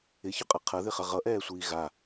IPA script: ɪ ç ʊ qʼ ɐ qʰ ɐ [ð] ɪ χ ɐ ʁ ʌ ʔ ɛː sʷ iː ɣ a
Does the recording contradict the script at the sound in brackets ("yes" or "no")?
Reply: no